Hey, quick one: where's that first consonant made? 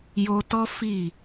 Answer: palate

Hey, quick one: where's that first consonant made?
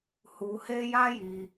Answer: throat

